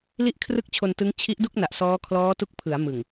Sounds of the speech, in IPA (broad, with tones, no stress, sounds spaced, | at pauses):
l i˥˩ ʔ kʰ r ɯ˥˩ k̚ t͡ɕʰ o˧ n t ɯ˦˥ ŋ t͡ɕʰ i˦˥ ʔ d u˥˩ k̚ n a˨˩ ʔ s ɔː˦˥ kʰ l ɔː˦˥ t u˦˥ k̚ pʰ ɯ˩˦ a̯ m ɯ˨˩ ŋ